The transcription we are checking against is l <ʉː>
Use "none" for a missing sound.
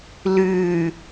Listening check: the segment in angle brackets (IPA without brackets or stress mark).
ʉː